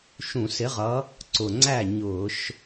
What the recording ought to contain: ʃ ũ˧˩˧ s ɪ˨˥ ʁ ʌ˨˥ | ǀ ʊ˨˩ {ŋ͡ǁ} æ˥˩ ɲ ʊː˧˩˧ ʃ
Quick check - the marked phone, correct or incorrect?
incorrect: ŋ͡ǀ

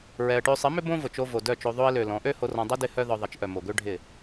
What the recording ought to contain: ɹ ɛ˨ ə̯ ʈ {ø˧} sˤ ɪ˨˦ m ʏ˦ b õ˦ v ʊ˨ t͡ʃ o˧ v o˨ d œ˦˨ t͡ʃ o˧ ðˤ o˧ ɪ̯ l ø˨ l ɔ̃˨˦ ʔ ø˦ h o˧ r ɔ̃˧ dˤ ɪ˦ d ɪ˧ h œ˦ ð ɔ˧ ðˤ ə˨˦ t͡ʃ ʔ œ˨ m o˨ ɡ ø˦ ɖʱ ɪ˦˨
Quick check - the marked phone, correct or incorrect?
correct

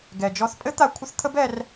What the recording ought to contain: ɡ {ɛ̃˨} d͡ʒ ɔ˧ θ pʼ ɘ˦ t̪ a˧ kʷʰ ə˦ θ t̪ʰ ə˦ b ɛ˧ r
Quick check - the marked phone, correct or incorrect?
incorrect: ɛ˨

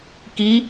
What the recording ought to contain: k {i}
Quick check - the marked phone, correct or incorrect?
correct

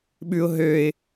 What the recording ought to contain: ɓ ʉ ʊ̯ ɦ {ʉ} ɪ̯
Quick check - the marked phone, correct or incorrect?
incorrect: ø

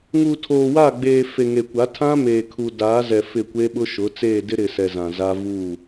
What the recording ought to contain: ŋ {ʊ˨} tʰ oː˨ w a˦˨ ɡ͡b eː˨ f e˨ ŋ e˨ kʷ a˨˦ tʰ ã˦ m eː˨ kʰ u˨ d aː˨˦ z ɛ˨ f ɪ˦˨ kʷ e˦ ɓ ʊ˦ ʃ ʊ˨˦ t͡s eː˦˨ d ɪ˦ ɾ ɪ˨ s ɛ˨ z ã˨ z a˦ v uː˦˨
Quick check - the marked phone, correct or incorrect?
incorrect: u˨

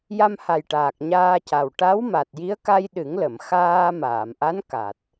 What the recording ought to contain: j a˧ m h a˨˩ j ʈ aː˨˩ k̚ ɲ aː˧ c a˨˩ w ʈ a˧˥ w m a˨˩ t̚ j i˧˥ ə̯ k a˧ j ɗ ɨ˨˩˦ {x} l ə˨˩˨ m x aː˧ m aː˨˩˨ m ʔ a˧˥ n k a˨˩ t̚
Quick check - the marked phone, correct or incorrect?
incorrect: ŋ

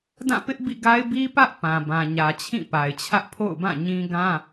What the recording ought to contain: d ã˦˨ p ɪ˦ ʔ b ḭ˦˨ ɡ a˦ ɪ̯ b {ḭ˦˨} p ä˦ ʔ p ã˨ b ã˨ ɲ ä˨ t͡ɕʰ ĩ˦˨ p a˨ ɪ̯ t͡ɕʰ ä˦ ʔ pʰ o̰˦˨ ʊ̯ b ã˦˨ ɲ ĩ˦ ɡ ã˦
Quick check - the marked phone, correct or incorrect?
incorrect: i˦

